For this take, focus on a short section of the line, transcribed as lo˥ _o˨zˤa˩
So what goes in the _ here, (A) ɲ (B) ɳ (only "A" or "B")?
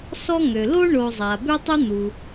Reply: B